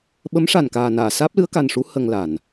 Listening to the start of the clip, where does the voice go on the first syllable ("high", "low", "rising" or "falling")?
rising